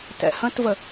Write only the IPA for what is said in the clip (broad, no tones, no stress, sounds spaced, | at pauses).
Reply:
t ɛ̰ h ə̃ t v ə